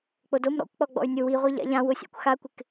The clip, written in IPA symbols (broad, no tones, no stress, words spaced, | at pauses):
k͡podom ɾɔ̰kʷk͡pɔ ɡ͡bɔ̰y̯nʲʊ wiʁʷi ʎa̰ʎãwʊsʲa̰kʷ xakʷɪk